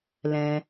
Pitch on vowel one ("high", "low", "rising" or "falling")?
low